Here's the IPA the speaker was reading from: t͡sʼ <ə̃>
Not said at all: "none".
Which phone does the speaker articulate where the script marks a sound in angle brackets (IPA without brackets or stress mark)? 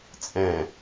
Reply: ɛ̃